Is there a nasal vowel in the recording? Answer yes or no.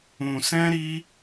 yes